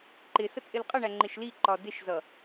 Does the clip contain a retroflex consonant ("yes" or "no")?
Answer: yes